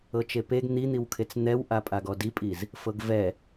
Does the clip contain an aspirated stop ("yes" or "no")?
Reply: yes